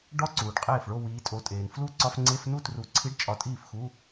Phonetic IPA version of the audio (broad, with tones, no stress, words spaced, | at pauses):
ɖɒ˦˥ǀuː˩ɖ qʼeː˥˩f ɭo˥˧wiː˨˦tʼo˨˦tʼeː˩n flu˥˩ǀɒ˧˥˧f ŋ͡ǀe˧˥˧fnu˥˧ tru˨˦ǀʰi˧˥˧ɖt͡ʃʼɒ˨˦ tʼiː˥˩fxu˧˥˧